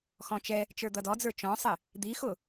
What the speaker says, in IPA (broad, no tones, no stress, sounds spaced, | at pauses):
x ɔ̃ t͡ʃ ɛ | t͡ʃ ə˞ d̪ ʌ d ɔ d͡z ə˞ t͡ʃ ɔ̃ sˤ ɪ | d̪ i x ʊ